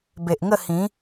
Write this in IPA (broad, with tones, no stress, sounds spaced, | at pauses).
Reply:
b e˨ ʔ ŋ ə˥˧ h ĩ˨˦